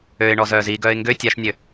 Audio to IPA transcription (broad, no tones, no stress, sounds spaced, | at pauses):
ø ɪ̯ ɳ ɔ z œː z i ɡ œː ɪ̯ ŋ ɡ ø tʲ a ʃ nʲ ø